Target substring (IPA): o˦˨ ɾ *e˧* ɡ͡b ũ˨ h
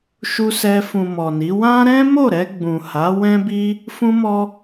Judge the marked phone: incorrect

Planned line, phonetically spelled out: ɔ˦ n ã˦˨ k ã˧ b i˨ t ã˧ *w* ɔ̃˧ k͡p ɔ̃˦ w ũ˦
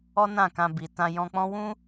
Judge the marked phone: incorrect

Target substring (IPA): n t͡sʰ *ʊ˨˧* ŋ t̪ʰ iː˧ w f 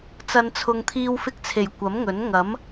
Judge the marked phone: incorrect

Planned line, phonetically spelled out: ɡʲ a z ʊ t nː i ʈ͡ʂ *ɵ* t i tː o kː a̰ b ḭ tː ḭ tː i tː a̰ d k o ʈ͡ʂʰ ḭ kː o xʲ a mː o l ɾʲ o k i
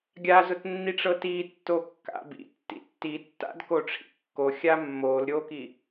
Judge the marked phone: incorrect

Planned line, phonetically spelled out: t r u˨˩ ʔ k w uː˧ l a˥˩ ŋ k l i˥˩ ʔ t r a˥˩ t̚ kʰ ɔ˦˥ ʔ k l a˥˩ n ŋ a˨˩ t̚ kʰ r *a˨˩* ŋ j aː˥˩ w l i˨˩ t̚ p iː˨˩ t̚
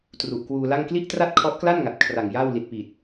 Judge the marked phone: correct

